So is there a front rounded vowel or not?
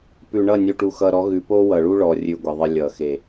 no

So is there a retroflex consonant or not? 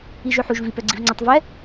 no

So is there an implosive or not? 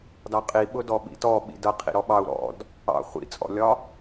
yes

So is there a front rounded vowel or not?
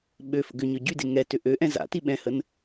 yes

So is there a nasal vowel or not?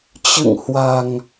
no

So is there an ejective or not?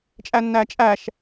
yes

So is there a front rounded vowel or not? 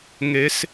no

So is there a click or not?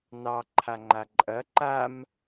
yes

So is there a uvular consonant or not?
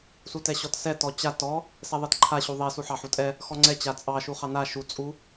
yes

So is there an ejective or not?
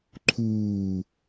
no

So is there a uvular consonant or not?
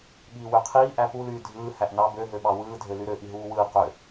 yes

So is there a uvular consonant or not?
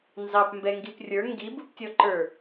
no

